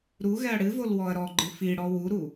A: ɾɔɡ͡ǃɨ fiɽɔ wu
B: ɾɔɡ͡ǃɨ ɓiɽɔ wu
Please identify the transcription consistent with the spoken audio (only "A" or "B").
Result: A